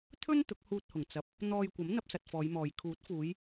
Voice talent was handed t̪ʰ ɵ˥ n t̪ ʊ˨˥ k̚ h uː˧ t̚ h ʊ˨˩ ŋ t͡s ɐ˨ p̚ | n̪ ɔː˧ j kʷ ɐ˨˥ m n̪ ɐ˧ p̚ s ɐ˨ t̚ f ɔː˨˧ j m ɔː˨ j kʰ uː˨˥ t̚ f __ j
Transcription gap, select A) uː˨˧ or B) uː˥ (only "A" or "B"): A